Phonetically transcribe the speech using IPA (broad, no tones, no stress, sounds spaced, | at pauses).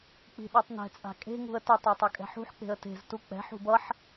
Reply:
k͡p i̤ ɗ ɯ tˤ n ɛ̤ t͡sʼ a̤ kʼ e̤ ŋ ṳ ə̯ t ɛ tˤ ʌ tˤ ʌ kʼ ɛ̤ ħ ṳ ħ k͡p e̤ ə̯ t e̤ z t u k͡p ɛ̤ ħ ṳ b ʌ ħ